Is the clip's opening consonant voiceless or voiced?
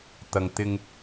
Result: voiceless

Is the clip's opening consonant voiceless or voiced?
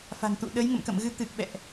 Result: voiceless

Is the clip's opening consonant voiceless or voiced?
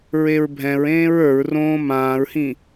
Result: voiced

